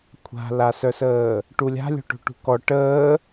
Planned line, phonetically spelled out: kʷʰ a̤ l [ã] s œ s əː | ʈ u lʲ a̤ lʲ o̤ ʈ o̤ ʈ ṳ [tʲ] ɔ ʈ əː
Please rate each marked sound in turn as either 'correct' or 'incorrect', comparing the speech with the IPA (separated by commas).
incorrect, incorrect